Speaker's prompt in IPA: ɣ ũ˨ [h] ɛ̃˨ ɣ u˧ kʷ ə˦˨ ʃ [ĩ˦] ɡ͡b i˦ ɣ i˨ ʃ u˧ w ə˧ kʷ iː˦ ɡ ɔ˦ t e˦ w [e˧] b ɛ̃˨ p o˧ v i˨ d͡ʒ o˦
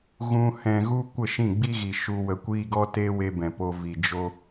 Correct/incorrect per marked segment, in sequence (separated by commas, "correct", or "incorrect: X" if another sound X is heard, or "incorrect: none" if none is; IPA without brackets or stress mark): correct, incorrect: ĩ˦˨, correct